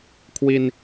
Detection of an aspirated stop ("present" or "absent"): present